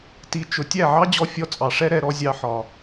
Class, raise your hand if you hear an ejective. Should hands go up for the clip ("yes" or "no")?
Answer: yes